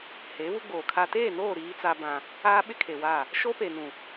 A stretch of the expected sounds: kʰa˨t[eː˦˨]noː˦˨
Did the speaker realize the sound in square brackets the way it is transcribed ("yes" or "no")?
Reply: yes